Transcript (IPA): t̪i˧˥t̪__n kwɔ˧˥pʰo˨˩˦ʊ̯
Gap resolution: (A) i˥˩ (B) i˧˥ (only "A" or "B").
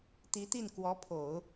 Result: A